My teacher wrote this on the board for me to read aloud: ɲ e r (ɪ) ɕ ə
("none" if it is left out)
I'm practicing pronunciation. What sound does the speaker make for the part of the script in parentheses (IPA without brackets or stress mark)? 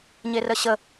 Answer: ə